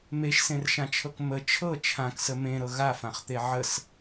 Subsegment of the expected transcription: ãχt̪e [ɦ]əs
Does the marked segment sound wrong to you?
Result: yes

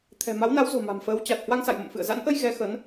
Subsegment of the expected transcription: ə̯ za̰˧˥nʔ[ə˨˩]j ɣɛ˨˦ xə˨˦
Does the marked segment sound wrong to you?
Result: yes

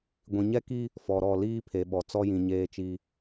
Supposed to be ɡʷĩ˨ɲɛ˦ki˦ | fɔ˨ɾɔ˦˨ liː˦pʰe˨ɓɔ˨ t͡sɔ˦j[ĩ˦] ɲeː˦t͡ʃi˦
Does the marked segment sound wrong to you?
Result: yes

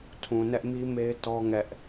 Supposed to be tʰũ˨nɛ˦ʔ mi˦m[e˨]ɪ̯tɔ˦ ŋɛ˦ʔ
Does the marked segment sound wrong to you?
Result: yes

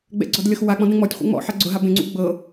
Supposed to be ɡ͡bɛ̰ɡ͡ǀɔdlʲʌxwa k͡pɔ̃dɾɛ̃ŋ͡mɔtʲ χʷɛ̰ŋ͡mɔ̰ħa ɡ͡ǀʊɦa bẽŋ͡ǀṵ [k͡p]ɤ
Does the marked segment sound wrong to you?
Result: yes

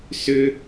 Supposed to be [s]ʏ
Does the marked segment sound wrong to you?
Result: no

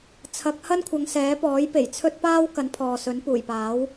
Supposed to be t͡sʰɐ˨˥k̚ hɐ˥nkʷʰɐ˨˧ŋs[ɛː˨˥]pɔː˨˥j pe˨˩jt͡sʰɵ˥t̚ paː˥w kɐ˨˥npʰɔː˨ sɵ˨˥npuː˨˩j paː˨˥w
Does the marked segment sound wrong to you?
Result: no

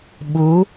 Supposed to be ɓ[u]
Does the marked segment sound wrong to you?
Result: no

